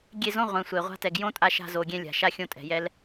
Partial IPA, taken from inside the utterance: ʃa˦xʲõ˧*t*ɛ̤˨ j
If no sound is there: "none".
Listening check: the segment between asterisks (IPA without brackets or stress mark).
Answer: tʼ